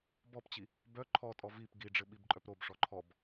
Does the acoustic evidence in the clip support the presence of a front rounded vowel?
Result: yes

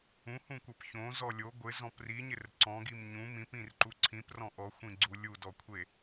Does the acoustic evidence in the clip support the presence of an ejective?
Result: no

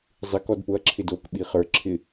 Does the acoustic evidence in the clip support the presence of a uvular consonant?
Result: yes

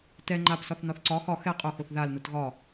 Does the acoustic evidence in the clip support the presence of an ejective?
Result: yes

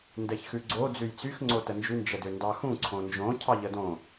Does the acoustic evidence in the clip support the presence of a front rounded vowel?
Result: yes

